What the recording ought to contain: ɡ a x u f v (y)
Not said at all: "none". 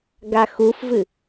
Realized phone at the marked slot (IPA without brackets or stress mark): ɨ